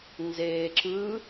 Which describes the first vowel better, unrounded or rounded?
unrounded